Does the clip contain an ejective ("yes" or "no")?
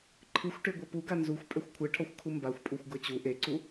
yes